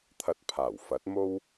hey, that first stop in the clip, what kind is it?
aspirated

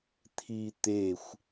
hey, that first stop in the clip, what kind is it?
aspirated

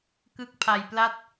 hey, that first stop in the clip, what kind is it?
plain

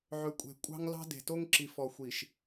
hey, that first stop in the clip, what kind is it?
ejective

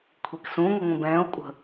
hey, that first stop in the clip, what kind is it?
aspirated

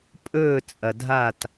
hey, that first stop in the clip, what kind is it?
ejective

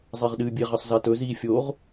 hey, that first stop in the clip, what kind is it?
implosive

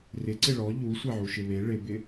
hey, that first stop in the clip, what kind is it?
click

